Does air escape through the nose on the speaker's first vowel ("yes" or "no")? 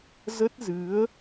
no